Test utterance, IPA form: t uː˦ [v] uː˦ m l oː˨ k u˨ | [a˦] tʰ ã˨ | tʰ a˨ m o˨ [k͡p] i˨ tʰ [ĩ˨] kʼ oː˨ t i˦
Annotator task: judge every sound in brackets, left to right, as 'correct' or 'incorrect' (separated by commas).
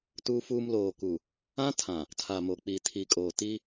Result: incorrect, incorrect, correct, incorrect